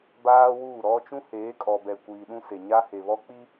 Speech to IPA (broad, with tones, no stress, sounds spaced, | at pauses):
b aː˦ w uː˦˨ ɾ ɔ˦ t͡ʃ ũ˦ h eː˨˦ kʼ ɔ˨ b ɛ˨ kʷ iː˨ ɗ ũ˦ s e˨ ɲ a˦ h e˨ β ɔ˦ k͡p i˦